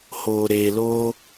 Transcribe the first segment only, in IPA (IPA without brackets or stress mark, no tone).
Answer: h